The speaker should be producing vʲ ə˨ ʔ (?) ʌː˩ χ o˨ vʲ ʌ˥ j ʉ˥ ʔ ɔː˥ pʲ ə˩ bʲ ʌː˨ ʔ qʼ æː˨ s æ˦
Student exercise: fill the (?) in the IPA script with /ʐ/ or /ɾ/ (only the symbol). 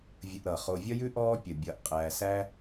ɾ